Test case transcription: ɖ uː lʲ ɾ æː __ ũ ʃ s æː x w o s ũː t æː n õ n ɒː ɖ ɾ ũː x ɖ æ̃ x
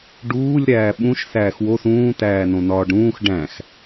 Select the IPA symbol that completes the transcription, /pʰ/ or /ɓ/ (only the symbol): ɓ